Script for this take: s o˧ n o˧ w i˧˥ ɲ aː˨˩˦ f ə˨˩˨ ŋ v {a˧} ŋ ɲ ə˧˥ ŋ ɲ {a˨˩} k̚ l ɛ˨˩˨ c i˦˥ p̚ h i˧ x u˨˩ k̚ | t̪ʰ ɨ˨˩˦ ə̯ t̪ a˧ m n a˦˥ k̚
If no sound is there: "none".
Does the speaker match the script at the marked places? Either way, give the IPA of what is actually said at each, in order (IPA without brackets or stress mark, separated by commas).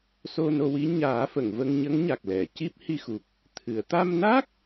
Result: ə˧, a˨˩